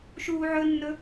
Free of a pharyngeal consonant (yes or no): no